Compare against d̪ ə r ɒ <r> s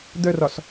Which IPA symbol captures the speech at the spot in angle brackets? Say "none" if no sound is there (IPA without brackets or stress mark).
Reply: none